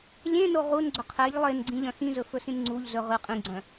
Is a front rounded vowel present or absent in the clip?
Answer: present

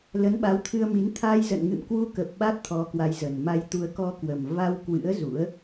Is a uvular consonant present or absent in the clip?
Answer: absent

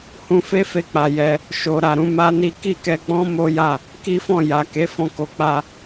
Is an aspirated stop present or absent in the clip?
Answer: absent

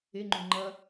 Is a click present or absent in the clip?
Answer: present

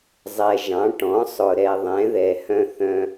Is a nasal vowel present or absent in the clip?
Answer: present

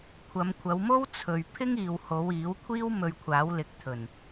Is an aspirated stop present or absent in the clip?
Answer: present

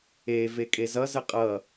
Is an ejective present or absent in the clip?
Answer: present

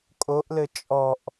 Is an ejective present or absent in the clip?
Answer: present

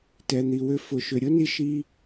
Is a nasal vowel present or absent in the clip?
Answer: absent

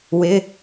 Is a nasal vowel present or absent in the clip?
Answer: absent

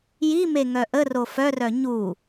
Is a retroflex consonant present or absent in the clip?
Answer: absent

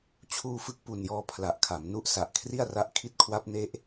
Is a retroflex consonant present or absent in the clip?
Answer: absent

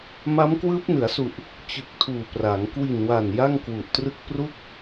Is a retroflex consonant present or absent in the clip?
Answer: absent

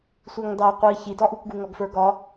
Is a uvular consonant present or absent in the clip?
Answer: present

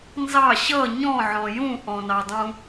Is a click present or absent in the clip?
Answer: absent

